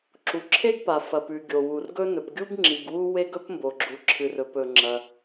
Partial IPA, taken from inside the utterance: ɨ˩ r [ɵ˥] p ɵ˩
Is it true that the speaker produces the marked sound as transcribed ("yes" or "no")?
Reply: no